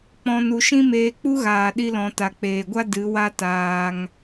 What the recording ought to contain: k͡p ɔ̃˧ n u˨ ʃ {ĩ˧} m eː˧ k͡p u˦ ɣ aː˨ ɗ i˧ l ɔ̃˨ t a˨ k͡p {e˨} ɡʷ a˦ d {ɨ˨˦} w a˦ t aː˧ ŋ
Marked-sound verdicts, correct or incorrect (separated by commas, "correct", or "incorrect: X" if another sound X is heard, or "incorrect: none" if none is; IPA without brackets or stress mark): incorrect: ĩ˦, incorrect: eː˨, correct